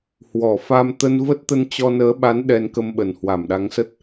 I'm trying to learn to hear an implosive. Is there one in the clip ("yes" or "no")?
yes